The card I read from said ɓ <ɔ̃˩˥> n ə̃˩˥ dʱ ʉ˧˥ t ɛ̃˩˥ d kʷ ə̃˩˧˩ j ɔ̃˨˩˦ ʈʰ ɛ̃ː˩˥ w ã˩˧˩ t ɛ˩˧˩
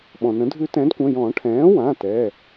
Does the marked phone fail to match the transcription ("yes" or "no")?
yes